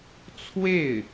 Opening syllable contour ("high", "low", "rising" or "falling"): falling